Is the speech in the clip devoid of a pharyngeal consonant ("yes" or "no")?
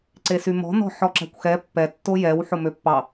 no